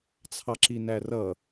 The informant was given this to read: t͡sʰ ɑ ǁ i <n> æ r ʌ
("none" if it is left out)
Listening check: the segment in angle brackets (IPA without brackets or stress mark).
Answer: n